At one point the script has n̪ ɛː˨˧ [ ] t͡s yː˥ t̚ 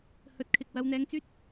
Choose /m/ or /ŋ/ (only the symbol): ŋ